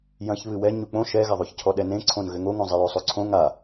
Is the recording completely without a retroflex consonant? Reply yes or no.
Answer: yes